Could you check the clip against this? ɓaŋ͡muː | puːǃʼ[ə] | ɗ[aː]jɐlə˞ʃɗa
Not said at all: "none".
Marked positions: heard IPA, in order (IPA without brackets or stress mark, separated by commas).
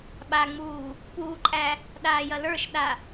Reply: æ, aː